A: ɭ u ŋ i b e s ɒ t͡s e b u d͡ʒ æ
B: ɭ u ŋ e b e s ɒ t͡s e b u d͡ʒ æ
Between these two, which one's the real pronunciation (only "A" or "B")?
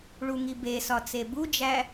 A